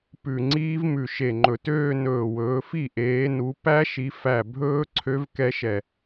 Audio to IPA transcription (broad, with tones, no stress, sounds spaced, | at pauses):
p ʉ˧˩ ŋ͡ǀ iː˦˥ v m ʉ˧˩ ʃ e˧˩ ŋ͡ǃ ɵ˧˩ t øː˥˧ n ɵː˧˩ w ɵː˨˦ f i˥˩ ʔ eː˨˦ n u˨˦ p æ˦˥ ʃ i˨˦ f æ˥˩ bʱ ɵː˦˥ ǀʰ ø˦˥ v k ɛ˦˥ ʃ ɛ˧˩